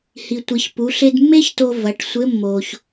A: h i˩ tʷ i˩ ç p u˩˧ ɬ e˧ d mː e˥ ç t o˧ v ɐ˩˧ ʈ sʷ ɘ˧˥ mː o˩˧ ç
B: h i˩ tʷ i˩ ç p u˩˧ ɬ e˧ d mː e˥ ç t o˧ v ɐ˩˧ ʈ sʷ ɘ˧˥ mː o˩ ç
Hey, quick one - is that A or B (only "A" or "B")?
B